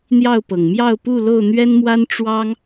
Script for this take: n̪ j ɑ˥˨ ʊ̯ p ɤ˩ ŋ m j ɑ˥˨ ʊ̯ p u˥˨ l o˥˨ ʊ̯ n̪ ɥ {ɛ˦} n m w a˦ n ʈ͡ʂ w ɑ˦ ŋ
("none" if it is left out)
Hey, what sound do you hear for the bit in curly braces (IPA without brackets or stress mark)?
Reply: ɛ˦